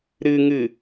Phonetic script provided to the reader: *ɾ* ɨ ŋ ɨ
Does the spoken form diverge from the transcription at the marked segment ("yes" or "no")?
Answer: no